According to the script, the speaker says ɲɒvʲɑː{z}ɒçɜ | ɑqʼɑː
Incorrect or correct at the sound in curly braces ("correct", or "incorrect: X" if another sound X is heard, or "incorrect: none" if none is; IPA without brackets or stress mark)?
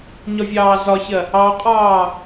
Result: correct